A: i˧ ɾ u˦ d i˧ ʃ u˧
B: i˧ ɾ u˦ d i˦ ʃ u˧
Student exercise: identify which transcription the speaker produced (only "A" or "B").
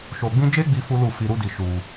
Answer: A